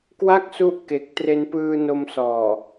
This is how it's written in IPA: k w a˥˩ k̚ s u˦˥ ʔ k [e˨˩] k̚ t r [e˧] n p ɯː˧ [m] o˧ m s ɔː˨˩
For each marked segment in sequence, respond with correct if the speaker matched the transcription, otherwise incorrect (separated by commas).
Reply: correct, correct, incorrect